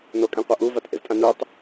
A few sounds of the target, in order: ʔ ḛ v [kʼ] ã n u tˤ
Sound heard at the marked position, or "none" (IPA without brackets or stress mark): tʼ